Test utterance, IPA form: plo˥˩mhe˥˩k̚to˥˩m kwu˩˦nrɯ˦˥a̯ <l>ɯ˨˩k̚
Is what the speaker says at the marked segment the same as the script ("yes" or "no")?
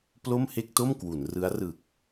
no